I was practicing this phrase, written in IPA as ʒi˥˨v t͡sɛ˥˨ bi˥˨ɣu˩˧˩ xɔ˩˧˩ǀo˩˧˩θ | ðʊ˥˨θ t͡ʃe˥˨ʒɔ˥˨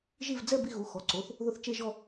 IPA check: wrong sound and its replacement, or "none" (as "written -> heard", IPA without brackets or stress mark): t͡s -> d͡z